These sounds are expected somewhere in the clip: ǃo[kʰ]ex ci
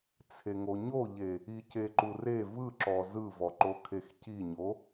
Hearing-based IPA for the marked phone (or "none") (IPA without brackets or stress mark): kʰ